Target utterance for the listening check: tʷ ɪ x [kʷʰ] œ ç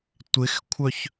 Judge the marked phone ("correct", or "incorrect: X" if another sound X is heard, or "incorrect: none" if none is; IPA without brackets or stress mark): correct